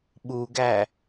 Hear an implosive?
yes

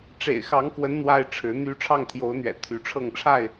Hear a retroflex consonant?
yes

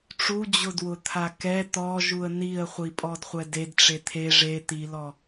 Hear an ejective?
yes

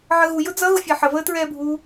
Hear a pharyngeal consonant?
yes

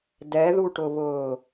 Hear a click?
no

